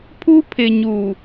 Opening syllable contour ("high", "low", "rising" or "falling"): high